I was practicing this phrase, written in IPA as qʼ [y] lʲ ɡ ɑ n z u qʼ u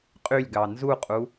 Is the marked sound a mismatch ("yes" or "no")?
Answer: no